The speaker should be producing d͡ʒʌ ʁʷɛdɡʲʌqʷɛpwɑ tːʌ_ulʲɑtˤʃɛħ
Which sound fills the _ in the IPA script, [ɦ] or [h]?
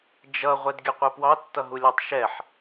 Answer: ɦ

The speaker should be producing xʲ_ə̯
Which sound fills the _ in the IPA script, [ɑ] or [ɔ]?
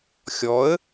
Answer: ɔ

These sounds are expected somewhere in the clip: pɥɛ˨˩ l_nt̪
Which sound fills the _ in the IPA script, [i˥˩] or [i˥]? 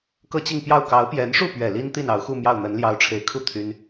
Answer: i˥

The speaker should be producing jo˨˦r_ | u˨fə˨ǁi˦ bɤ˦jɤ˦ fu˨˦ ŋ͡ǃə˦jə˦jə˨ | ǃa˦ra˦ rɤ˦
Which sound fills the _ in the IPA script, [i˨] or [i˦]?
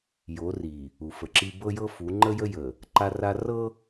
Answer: i˨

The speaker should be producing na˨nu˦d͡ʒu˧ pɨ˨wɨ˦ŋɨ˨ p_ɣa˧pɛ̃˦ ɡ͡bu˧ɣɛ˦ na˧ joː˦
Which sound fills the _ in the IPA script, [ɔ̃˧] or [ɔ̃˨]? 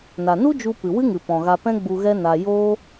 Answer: ɔ̃˨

